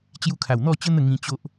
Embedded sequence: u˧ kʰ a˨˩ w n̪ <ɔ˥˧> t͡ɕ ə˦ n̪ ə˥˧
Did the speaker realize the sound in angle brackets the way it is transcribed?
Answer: yes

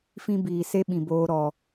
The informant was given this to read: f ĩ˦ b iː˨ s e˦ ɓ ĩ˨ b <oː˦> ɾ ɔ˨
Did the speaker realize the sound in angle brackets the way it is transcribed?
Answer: no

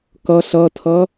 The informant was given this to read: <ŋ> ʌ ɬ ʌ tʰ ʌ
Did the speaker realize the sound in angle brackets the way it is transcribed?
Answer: no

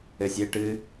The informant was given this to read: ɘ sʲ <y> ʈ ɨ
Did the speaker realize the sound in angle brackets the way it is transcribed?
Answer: no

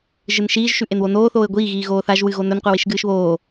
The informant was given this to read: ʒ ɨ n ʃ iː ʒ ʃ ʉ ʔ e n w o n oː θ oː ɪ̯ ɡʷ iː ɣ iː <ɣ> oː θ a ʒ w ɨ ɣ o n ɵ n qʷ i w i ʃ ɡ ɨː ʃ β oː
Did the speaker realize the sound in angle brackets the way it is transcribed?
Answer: yes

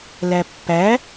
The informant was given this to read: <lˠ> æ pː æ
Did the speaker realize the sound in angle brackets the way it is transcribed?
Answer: no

